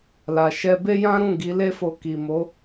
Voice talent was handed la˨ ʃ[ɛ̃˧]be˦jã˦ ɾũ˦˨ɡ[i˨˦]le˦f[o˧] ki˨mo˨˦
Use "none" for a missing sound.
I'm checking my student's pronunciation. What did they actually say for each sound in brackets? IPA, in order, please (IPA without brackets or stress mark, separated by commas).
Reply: ɛ˧, i˨˦, o˧